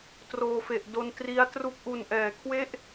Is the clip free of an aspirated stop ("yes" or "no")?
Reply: no